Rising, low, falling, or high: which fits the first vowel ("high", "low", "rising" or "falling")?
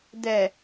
low